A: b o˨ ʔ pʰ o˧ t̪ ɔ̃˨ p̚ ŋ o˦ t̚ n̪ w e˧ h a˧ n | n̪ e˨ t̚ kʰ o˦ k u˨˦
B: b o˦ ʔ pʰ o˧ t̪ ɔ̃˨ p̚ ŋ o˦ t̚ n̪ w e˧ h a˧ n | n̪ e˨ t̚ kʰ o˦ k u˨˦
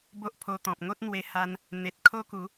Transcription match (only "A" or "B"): B